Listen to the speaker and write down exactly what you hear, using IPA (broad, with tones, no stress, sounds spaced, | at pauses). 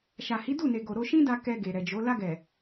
ʃ a˨ h i˨˦ d u˦˨ n e˨ ɡ o˨ ɾ o˧ ʃ ĩ˦ d a˧ k ɛ˧ ɡ e˨ ɾ ɛ˨ d͡ʒ o˨˦ l a˧ ɡ ɛ˨